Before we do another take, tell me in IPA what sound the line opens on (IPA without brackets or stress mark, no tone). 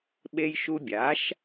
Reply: ɓ